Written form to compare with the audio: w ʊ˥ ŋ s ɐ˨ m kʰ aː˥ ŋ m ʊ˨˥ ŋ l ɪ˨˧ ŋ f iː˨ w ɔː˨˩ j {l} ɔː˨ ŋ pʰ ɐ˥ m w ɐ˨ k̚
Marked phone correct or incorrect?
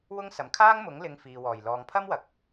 correct